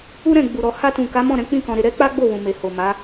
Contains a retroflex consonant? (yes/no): no